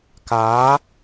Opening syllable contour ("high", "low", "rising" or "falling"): rising